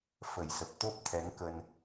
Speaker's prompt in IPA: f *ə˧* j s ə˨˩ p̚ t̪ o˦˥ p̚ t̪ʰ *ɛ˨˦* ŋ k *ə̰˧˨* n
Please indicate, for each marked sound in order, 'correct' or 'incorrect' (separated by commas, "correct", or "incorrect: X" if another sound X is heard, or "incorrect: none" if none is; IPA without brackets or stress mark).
incorrect: ə˨˩, correct, incorrect: ə˧